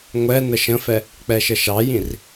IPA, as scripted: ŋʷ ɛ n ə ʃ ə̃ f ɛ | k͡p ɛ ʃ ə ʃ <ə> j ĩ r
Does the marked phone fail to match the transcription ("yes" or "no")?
yes